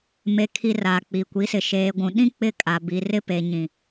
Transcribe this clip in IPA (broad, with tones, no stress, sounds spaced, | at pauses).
m e˨ kʰ i˨ r a˨ k͡p i˨ kʷ i˨˦ s ɪ˨ ʃ eː˨ ɡʷ ũ˨ ɗ ĩ˦ k͡p ɪ˦ kʼ a˨ b i˨ r ɪ˦ p e˨ ɲ ĩ˨